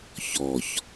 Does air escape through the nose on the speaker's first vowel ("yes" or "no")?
no